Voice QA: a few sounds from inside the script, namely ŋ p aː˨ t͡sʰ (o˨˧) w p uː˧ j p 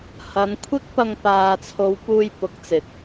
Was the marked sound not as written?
no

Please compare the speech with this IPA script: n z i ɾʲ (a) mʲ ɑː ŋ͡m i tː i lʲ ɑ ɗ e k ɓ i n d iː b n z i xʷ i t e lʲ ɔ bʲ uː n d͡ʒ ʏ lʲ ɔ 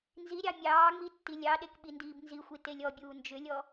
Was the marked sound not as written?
yes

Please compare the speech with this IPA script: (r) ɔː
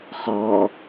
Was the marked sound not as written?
yes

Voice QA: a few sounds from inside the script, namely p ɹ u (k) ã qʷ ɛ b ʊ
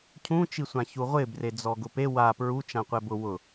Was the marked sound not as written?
yes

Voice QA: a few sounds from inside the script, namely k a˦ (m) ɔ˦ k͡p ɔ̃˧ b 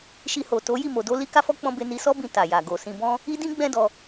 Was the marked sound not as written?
yes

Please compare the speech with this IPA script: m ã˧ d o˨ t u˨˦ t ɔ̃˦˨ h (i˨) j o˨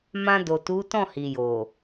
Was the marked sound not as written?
no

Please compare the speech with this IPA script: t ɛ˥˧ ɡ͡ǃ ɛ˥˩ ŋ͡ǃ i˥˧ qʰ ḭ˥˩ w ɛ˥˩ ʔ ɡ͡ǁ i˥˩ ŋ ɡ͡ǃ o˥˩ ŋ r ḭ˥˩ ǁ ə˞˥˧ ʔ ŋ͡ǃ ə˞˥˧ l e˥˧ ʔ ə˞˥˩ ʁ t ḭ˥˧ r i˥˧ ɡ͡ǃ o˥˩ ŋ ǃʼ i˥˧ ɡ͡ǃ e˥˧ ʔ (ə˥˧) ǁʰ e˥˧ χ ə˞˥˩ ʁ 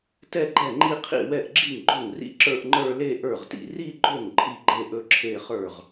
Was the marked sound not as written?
yes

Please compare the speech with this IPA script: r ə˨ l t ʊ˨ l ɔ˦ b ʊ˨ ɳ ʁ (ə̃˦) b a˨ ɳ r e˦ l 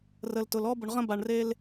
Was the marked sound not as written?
no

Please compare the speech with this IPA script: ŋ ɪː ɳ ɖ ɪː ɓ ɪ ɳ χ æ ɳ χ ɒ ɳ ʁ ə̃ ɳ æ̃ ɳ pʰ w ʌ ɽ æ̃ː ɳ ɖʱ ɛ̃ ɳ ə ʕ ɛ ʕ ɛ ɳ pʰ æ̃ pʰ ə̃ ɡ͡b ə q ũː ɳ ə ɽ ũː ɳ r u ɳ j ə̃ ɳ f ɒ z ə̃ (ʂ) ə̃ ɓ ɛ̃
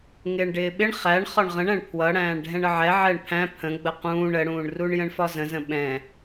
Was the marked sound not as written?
yes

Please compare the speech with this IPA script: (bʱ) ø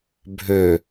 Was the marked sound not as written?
no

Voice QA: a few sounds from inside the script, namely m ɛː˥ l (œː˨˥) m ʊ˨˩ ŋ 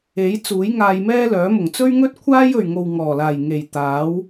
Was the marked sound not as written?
no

